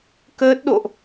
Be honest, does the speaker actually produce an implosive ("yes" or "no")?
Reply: yes